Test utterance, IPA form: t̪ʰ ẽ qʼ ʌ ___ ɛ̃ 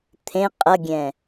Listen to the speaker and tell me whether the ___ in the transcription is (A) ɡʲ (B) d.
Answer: A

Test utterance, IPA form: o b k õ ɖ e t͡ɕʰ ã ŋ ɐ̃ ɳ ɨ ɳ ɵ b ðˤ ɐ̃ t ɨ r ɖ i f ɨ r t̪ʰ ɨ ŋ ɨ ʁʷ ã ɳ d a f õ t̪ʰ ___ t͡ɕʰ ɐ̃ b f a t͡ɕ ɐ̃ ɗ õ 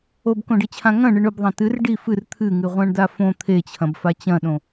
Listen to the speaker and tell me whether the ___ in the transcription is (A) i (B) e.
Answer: B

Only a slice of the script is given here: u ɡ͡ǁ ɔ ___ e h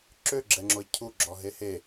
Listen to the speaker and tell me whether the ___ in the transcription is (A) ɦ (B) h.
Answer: A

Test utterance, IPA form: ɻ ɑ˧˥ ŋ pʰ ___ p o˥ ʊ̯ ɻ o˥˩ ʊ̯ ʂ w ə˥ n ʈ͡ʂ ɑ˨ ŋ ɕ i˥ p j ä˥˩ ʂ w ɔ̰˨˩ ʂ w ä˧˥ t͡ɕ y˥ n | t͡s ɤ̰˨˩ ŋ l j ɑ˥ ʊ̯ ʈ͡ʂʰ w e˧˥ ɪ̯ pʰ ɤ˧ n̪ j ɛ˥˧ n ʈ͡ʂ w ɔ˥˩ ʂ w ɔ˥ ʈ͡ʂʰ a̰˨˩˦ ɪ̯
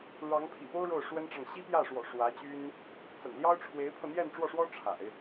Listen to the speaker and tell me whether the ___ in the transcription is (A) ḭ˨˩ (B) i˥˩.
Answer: A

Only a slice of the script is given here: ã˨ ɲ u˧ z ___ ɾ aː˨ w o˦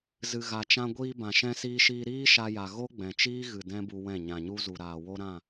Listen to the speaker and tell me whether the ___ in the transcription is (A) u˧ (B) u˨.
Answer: B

